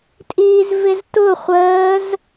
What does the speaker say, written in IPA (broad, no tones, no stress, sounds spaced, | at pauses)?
tʼ iː z v ɪ z t ʊ χʷ əː z